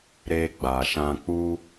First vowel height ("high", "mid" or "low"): mid